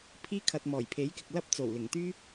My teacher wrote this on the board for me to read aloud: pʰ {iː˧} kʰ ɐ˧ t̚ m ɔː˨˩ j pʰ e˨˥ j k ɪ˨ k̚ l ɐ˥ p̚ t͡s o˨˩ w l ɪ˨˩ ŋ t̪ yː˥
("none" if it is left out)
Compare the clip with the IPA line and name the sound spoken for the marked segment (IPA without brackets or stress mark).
iː˥